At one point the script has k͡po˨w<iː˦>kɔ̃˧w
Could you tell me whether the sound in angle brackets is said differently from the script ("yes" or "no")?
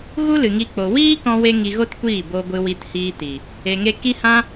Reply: no